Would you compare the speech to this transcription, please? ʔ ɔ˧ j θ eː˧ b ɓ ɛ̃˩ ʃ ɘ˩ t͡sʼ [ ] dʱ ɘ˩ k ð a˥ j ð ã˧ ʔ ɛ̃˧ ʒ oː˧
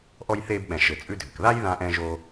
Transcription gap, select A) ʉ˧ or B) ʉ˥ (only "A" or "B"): A